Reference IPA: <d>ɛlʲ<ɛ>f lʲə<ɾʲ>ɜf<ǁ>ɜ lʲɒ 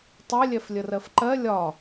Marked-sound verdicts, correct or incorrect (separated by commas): incorrect, correct, incorrect, incorrect